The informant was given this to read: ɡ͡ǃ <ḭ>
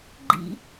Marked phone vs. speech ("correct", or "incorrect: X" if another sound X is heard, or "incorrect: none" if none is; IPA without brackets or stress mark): correct